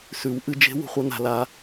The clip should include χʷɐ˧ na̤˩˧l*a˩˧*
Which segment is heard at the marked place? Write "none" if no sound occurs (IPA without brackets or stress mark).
a˩˧